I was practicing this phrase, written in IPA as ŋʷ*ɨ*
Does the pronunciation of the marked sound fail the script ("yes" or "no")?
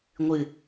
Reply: no